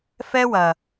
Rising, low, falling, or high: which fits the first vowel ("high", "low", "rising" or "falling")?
high